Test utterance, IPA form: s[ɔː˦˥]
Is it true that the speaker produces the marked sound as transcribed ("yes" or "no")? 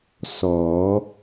no